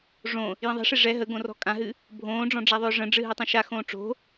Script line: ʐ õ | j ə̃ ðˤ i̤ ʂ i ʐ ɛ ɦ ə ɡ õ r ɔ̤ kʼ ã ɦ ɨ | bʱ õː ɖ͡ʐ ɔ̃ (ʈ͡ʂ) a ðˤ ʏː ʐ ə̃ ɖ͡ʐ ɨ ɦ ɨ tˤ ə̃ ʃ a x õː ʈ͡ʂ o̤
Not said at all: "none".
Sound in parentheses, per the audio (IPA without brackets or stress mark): ɖ͡ʐ